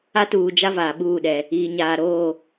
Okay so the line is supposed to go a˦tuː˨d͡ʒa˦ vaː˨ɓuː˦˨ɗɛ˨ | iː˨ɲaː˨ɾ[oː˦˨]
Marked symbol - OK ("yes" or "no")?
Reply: yes